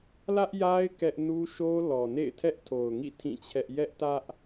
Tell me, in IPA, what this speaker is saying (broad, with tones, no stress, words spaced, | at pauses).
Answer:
lä˦ʔja˦ɪ̯ kɛ˦ʔ nu˦ʃo˦ lɔ˨ nḛ˦˨ɪ̯tʰɛ˦ʔ tʰo˨ʊ̯ŋḭ˦˨ tʰĩ˦˨t͡ɕʰɛ˦ʔ jɛ˦ʔtä˦ʔ